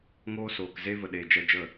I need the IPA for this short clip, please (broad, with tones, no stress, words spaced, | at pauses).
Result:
ŋoː˦soː˨kze˦və˨ ɗeː˨ d͡ʒɛ˧d͡ʒə˦˨